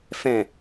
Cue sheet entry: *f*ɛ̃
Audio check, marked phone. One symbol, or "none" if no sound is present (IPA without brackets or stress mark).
f